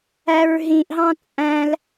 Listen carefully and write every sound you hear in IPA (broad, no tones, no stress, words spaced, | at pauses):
æɹɦĩʔɦɑ̃ t͡sʼæ̃l